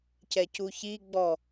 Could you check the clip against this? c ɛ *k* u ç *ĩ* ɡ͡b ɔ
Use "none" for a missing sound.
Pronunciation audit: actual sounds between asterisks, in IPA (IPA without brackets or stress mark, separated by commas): c, i